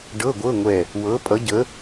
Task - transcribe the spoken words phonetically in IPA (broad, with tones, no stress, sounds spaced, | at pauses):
ɖ ɤ˧˥˧ ɡʷ ɤ˧˥˧ ŋʷ ɛ˧˩ | w ɤ˨˥ pʼ ʌ˨˥ ɟ ə˨˥